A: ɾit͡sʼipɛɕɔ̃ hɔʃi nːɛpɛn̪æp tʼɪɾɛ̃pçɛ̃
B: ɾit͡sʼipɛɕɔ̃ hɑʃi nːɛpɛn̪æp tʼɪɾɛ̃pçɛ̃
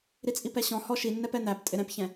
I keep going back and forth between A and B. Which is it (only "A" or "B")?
A